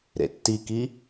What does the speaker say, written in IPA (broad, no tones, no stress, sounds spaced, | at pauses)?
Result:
ɾ ḛ tː i k i